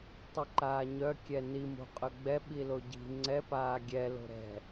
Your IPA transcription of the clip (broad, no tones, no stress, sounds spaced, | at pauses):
tˤ i ǃ aː ɲ œ kʲ ɛ n i m o̤ qʼ œ ɡ͡b ɛ ɓ i l o ɟ i̤ ŋ͡ǀ ɛ p aː ɡʲ ɛ l o̤ ɾ ɛ̤